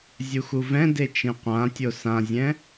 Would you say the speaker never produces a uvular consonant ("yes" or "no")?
no